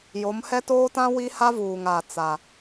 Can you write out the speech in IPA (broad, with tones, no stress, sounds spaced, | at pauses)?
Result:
j o˨˦ m h ɛ˦ t oː˦ t ã˦ w i˦ h a˦ v uː˨ ŋ a˨ t͡s a˨